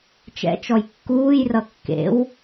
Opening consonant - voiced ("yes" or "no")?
no